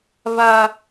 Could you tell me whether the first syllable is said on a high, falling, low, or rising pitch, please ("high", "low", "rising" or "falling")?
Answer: high